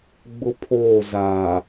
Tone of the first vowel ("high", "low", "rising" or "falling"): high